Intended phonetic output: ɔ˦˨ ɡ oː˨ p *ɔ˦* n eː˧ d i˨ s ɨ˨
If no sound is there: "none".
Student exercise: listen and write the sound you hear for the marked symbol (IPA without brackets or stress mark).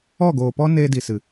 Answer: ɔ˦